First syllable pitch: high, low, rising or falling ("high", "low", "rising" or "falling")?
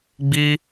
high